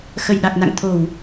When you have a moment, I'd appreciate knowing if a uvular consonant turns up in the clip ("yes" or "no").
no